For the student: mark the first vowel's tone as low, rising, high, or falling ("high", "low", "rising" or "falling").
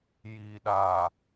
low